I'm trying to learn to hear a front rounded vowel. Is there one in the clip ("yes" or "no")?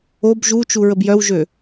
yes